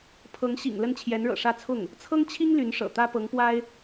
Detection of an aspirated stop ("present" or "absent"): present